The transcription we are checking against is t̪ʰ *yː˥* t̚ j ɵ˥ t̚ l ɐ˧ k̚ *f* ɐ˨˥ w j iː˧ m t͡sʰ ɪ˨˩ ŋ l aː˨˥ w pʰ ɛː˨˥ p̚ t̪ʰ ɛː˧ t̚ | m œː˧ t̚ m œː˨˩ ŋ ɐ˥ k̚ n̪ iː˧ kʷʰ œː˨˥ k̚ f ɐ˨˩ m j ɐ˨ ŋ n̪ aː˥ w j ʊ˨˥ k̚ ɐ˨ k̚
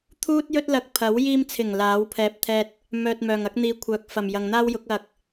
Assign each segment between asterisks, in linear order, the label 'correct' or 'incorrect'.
incorrect, incorrect

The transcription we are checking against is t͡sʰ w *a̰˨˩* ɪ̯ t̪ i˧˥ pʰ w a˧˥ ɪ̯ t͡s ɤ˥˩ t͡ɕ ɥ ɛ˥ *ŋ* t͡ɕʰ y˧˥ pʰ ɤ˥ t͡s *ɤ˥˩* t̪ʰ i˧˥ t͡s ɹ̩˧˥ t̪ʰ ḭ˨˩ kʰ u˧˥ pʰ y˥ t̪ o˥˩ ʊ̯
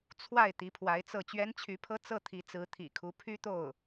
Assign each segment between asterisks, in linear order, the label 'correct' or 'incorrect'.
incorrect, incorrect, correct

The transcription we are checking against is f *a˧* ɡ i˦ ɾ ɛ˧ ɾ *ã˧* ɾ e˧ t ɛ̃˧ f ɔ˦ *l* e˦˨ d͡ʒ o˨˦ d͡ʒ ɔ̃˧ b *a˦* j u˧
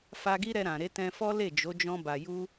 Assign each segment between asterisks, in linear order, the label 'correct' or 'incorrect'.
correct, incorrect, correct, incorrect

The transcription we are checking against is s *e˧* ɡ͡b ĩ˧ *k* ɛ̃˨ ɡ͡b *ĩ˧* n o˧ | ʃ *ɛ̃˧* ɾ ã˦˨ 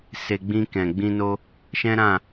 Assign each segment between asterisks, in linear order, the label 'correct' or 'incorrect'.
correct, correct, correct, incorrect

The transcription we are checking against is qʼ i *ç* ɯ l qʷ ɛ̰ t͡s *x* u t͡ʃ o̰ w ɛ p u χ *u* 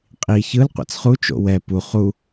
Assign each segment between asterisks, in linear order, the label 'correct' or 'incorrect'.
correct, incorrect, correct

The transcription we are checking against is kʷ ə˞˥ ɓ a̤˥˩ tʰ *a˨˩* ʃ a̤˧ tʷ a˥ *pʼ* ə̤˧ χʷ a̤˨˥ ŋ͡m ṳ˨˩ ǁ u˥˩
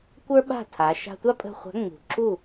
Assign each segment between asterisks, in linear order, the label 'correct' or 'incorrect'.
incorrect, correct

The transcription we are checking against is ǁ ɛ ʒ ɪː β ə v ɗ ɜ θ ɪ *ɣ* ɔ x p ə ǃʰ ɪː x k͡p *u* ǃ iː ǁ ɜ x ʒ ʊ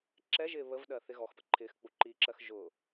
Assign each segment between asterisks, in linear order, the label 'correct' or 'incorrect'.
correct, correct

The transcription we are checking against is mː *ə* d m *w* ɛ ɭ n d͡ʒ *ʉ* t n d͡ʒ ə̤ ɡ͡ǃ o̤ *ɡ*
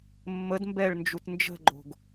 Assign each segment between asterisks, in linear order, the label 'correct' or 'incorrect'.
correct, incorrect, incorrect, correct

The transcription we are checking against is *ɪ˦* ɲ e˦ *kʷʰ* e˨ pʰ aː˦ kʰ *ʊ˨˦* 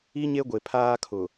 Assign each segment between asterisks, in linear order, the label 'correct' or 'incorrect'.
incorrect, incorrect, incorrect

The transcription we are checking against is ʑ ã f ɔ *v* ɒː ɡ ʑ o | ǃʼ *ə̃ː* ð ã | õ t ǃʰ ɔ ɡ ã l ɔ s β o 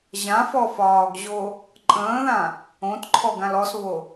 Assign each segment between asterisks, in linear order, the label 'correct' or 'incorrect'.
incorrect, correct

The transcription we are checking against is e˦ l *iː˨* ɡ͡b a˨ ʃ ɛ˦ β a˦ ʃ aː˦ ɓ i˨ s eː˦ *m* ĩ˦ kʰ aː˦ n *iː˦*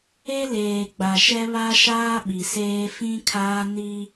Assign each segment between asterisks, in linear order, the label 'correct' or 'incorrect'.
incorrect, incorrect, incorrect

